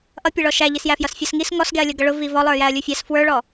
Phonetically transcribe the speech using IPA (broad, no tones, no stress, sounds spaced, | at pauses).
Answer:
ʔ ʌ pʲ ʌ ɭ ɔ ʃ æ ʎ i s j æ f j ʌ s fʲ ʌ s ŋ i s ŋ ɔ s ɡ ɛ ɐ̯ lʲ ʌ ɡ ʌ ɭ ʊ v i v ɔ lˠ ə˞ j æ ɐ̯ lʲ u fʲ æ s f w ə˞ ɭ ɔ